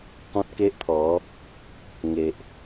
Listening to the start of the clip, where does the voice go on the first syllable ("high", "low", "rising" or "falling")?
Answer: high